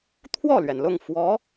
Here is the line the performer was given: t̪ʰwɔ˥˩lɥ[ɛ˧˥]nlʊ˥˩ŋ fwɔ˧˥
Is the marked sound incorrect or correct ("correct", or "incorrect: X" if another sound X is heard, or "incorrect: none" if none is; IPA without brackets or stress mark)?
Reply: incorrect: ɛ˩